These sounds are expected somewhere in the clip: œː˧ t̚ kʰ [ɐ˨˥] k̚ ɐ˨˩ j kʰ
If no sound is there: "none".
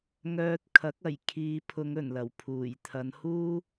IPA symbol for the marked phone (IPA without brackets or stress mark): ɐ˨˥